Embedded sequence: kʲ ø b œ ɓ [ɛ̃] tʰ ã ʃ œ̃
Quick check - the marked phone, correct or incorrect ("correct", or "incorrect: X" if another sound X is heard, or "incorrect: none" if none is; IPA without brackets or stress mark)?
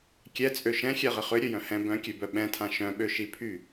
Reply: correct